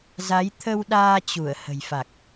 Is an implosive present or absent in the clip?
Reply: present